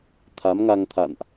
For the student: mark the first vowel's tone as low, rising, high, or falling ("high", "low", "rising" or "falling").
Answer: rising